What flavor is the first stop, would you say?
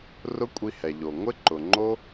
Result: ejective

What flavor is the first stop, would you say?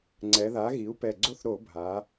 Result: click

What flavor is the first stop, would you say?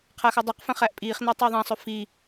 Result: aspirated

